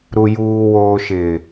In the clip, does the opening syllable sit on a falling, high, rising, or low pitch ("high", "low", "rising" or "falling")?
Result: low